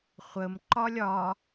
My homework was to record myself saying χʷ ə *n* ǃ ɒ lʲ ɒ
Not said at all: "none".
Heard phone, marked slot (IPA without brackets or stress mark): m